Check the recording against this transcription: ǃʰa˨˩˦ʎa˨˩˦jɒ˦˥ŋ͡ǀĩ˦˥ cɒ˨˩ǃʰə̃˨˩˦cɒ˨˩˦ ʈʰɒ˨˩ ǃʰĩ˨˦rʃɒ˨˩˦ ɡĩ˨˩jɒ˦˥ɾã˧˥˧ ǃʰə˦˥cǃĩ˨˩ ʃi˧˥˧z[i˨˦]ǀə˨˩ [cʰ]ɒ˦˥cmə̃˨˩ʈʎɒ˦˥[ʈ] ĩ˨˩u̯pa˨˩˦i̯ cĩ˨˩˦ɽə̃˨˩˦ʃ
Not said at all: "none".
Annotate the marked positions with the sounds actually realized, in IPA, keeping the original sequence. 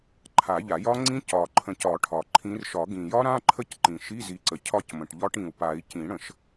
i˨˦, cʰ, ʈ

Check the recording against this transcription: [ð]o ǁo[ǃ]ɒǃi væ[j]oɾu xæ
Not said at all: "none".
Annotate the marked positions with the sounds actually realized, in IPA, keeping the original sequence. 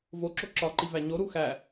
v, ǁ, ɲ

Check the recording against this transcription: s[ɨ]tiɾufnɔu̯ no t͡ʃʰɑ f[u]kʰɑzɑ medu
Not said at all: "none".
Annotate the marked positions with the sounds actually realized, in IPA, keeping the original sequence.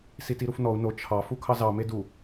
i, u

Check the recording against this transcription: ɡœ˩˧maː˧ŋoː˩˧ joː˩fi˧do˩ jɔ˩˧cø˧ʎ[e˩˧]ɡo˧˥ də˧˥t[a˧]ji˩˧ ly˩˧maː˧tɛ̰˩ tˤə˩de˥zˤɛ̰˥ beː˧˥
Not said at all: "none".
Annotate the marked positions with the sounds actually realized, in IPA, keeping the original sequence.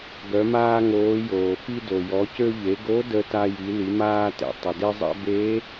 e˩˧, a˧

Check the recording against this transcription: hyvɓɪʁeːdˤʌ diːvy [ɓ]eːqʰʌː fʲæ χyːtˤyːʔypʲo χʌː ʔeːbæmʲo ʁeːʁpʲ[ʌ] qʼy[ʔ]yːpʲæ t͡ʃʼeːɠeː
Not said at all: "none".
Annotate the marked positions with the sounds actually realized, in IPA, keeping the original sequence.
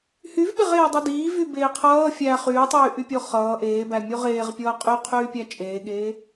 b, ʌː, qʰ

